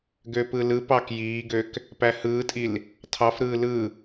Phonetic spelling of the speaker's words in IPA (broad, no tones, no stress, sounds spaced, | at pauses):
ɡ ø p ɯ l ɯ p ɑ k j iː ɡ ø k | p æ h ɯː tʼ i l | tʰ ɑ f ɾ ɯː l ɯ